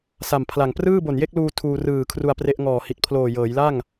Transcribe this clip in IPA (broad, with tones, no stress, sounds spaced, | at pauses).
s a˨˩ m pʰ l a˨˩ ŋ p r ɯː˥˩ b o˨˩ n j e˥˩ k̚ l uː˧ tʰ uː˧ r ɯː˨˩ kʰ r u˧ a̯ p r e˦˥ ʔ ŋ ɔː˨˩ h i˨˩ t̚ pʰ l oː˨˩ j ɤː˩˦ j l a˥˩ ŋ